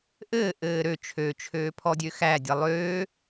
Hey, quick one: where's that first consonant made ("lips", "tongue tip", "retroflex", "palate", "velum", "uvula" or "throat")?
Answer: throat